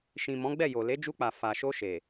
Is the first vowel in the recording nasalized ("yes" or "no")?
yes